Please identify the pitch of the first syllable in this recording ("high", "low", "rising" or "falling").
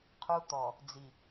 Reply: high